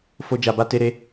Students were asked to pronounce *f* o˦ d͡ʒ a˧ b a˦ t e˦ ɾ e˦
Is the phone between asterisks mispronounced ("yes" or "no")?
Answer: no